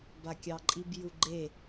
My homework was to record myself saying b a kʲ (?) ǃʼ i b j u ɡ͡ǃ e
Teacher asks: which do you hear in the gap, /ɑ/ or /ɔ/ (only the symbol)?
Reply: ɑ